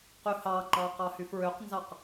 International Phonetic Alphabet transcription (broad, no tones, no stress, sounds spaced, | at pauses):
q y h ɑ ŋ͡ǃ ɑ q ɑ h y f ɹ ø q n z ɑ q